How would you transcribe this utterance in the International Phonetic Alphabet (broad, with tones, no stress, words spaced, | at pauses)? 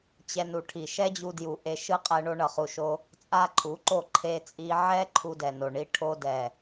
t͡ɕɛ˧nu˨ʈʰi˨ ʃɛ˦d͡ʑu˧dju˨ ʔe˧ʃɯ˦ qʼɛ˧ ɳo˧ɳʌ˨χu˨ʃo˧ | t͡sʼa˦ǃʰu˨˦ǃo˦˨ ǃʰe˧t͡sʼi˧ ʕɛ˦ ǃʰu˧dɛ˨no˨ ɳi˧ ʈʰo˧dɛ˨